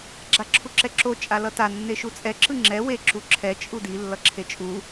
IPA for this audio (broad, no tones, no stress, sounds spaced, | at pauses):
ɡ͡ǁ a ǁʰ u ǁ ɛ ǁ o t͡ʃʼ a l ʌ t a nː e ʃ u t͡sʼ ɛ ǁ ɯ ŋ͡ǁ ɛ w e ǁ u ǁʰ ɛ t͡ʃʼ u d i lː ʌ ǁʰ e t͡ʃʼ u